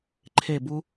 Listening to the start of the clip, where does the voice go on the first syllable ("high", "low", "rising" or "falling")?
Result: falling